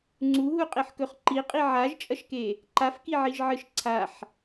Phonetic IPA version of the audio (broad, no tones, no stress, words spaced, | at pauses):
ŋ͡ǀuɦuqʼeħkɵχ ǃiqʼi ʕaʒt͡ʃʼɐʃke | ǃafkiʕiʒʕɨʃ ǀʰaħ